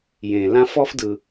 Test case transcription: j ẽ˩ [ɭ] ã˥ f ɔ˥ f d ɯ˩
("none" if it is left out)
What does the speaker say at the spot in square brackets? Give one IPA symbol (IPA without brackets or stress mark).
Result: l